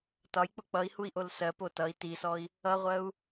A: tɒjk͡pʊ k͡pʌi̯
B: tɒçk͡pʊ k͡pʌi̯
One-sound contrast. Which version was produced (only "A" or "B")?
A